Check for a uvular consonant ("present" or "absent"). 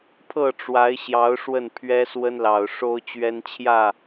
absent